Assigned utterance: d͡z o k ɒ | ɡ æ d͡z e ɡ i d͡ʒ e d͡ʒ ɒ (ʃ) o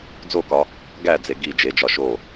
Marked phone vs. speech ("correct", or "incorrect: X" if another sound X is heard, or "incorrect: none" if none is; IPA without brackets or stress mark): correct